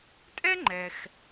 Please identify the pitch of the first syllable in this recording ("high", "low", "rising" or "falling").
high